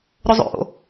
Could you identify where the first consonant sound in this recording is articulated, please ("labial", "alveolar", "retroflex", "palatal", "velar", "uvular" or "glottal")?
alveolar